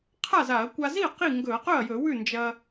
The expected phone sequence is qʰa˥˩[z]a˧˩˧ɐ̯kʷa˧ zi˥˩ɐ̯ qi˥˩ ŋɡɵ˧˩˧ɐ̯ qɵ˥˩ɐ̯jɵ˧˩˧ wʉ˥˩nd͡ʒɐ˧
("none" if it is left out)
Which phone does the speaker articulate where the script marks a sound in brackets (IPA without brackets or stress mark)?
z